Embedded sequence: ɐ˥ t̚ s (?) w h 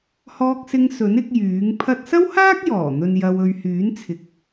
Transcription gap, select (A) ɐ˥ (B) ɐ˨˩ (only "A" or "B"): A